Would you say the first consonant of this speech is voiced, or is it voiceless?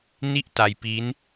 voiced